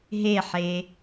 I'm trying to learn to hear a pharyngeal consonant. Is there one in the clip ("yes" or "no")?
yes